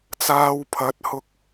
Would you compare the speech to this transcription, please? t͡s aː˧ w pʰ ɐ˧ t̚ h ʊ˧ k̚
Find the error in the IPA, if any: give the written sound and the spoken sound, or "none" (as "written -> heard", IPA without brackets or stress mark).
ɐ˧ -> ɐ˨˥